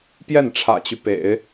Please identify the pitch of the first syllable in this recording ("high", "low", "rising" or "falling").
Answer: falling